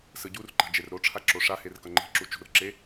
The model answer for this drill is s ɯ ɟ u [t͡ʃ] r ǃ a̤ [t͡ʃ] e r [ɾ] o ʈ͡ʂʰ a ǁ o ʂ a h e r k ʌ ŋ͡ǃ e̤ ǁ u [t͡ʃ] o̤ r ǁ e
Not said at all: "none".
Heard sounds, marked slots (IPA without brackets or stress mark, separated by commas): none, d͡ʒ, ɾ, t͡ʃ